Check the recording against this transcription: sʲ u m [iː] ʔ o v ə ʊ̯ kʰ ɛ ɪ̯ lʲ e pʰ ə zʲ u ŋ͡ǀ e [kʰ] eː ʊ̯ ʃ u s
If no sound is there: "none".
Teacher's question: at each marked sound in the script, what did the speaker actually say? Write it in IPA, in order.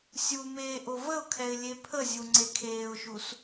eː, kʰ

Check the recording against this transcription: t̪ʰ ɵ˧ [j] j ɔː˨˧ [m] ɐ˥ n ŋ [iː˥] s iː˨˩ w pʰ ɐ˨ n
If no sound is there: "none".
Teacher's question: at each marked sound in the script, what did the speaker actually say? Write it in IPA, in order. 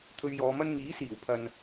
ɥ, m, iː˨˥

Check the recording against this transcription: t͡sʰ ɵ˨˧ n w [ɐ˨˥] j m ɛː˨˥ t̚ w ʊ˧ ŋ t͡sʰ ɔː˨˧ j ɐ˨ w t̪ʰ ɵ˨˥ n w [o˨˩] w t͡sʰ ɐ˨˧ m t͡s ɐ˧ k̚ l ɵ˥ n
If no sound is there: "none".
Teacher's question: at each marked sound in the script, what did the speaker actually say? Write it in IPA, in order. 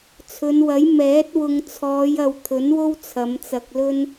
ɐ˨˥, o˥

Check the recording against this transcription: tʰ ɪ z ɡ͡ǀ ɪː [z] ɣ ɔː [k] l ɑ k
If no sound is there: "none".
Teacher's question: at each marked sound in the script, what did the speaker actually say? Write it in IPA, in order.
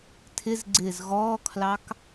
z, kʰ

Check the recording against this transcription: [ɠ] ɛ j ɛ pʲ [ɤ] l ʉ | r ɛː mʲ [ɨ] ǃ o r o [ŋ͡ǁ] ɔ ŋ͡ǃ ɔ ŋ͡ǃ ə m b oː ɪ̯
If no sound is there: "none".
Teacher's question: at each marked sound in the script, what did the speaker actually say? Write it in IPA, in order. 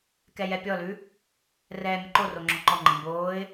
k, ɔ, ə, ŋ͡ǁ

